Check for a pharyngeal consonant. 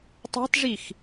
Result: absent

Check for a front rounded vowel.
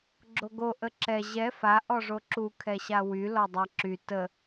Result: present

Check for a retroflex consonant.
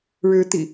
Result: present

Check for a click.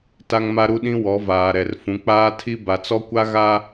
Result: absent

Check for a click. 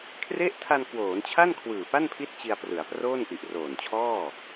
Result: absent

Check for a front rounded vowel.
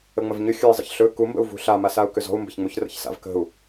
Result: present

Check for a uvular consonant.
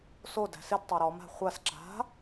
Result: present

